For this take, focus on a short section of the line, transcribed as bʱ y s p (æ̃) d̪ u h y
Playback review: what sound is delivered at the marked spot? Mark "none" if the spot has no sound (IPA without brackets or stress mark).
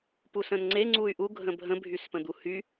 ə̃